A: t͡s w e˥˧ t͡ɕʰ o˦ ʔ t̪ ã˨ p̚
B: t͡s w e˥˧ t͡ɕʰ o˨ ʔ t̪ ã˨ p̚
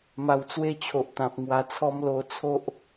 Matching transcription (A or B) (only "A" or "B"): B